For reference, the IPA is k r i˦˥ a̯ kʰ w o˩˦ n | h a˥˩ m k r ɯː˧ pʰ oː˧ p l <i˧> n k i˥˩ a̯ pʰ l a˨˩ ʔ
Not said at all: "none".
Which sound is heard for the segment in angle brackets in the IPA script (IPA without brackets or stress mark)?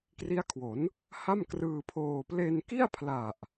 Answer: e˧